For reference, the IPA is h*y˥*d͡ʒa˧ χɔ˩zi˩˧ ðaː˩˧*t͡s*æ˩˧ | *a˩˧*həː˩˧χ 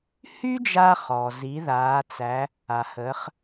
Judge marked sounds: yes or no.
yes, yes, no

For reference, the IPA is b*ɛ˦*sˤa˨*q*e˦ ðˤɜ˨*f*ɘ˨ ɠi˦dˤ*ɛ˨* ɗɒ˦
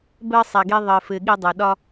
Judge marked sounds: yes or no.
no, no, yes, yes

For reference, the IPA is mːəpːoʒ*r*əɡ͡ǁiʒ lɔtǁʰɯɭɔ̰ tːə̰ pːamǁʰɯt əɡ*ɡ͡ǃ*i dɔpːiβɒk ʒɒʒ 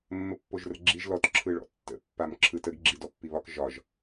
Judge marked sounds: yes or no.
yes, no

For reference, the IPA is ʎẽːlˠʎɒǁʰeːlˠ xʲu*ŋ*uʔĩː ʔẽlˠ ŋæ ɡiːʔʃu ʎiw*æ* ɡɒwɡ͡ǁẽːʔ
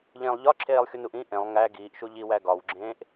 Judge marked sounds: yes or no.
no, yes

